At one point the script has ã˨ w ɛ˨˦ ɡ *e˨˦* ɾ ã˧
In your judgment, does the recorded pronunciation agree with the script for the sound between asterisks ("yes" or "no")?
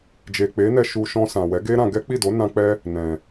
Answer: no